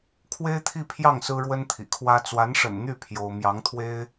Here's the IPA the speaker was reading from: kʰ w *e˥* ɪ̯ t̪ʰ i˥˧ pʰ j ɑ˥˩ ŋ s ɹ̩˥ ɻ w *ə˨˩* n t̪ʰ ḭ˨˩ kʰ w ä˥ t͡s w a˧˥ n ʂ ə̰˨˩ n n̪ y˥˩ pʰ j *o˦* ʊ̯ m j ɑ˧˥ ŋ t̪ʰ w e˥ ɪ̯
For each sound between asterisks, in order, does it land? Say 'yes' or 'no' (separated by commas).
yes, no, no